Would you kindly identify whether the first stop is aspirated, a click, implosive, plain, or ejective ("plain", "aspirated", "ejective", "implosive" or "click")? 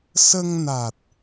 plain